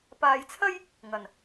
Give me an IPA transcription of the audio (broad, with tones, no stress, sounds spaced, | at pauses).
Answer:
p aː˨ j t͡sʰ ɐ˥ j | ŋ ɐ˨˩ n